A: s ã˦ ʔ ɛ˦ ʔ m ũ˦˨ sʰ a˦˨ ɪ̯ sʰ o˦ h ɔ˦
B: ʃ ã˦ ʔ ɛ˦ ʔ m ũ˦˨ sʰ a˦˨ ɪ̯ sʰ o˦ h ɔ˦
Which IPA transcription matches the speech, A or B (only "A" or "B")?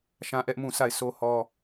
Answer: B